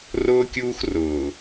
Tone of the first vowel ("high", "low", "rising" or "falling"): high